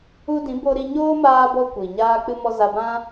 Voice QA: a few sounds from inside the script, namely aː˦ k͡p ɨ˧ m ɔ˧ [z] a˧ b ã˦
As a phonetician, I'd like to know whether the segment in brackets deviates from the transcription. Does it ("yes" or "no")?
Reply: no